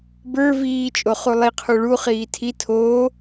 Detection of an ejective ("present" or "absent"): present